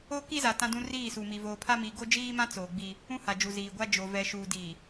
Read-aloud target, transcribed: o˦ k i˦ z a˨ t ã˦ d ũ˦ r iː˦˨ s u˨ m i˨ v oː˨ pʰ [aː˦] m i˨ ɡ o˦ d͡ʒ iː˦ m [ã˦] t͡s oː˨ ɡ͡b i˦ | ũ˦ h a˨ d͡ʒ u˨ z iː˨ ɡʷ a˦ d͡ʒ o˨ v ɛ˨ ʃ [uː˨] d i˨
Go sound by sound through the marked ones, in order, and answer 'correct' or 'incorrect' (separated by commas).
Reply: incorrect, correct, correct